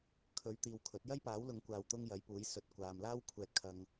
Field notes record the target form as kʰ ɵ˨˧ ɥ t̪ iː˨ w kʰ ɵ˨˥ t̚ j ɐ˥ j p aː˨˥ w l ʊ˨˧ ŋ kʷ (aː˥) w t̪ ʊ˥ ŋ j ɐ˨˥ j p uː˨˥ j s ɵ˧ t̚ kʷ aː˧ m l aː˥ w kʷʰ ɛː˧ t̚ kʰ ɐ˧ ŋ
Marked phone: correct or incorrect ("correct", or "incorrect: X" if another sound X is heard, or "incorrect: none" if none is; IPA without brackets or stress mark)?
incorrect: aː˨